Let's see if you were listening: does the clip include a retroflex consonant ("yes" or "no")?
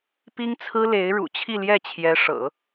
yes